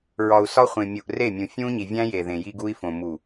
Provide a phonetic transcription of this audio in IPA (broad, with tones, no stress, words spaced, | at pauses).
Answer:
ɹɒ˨u̯sɒ˦χʷẽ˨mʲu˨ʔ re˦˨mʲũ˨ fʲũ˦ɲi˨ vʲæ̃˦ je˨ðẽ˨ ji˦ɡu˦i̯fõ˨ mu˨